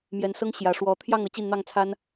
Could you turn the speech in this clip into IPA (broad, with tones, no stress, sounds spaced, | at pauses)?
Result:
m j ɛ˨˦ n s ɤ˦ ŋ ɕ j ä˨˩ ʂ w ɔ˨˦ t̪ʰ j ɑ˥˨ ŋ ɤ˨˦ t͡ɕ i˥˨ n n̪ ɑ˥˨ ŋ t͡sʰ a˦ n